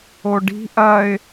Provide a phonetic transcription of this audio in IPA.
oɖi̤ ʔɐɪ̯

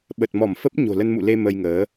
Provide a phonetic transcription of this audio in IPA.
ɓə˨˩t̚mɔ˧˩mfə˦˥p̚ ɲo̤˨˩lə˧nmṵ˧˨le˧ mə˧jŋəː˨˦

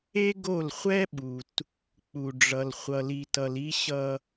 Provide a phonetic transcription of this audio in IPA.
e˦ɡo˦˨l χʷɛ˦ɓu˨t | k͡pu˨ɖ͡ʐʌ˨l χʷʌ˨li˨tʌ˨l i˦ɕʌ˦

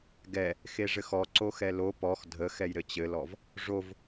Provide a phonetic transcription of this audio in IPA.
ɡɛ | xeʐɘxɔǀo xɛlo pɔx dʱə xɛjɾɘt͡ɕɘlɔv | ʐov

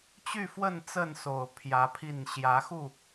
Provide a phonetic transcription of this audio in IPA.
t͡ɕy˥˨fwə˥˨n t͡sə˥˨nso˨˩ʊ̯ pʰjä˨˦pʰi˥˨n ɕjä˨˦xu˥˨

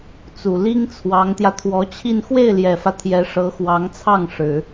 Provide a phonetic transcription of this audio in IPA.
t͡su˨˩ li˥ŋt͡sʰwɑ˧˥ŋt̪jä˧ t̪ʰwɔ˧˥t͡ɕʰi˥˧n xwe˥˩ɪ̯ljɛ˨˩fä˦ t̪ʰjɛ˧˥ʂɤ˧˥xwɑ˧˥ŋt͡sʰɑ˥˩ŋ ʂɻ̩˨˩˦

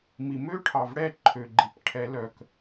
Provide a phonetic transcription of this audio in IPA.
mi˩mø˦˥ʈʰɑ˩v ɽɛ˥˨ǃʰø˩ ɡ͡ǃi˩p ʈʰɛ˨˩˦lœ˩k

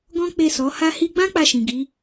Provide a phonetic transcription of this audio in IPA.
ɡɔ̃˦k͡pe˦˨sɔ˨˦ ha˧hi˧ɡ͡bã˦ k͡pa˦˨ʃĩ˨ɡi˨˦

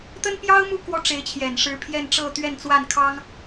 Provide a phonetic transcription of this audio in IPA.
t̪ə˥npjɑ˥ʊ̯mu˥˩ kwɔ˥ ʈ͡ʂe˧˥ɪ̯t͡ɕʰjɛ˨˩n ʂɻ̩˧˥pʰjɛ˥˧nʈ͡ʂɤ˥˧ t̪ɥɛ˥˧nt͡swa˥˩nkʰɑ˥ŋ

